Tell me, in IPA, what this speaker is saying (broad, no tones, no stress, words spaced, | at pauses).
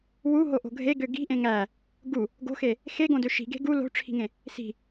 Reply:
wuɦoʔo̤ ɡʱeɡø ɡi̤ʔẽ ŋæ | ɡu | ɡo̤xe | xeɡõdø ʃi̤ɡe̤ ɡu lo̤ʈ͡ʂʰi̤ŋẽ | si̤